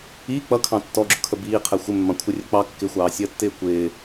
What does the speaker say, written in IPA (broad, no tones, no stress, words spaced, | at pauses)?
i k͡pʌkʰɑ̃ tːɔɡ͡ǁʊkʰə biːqʰɛ xʷɪmːɑ̃kʷʰɪrʲə k͡pɑ kːɪxʷɑːsʲəːtːɪː kʷɪː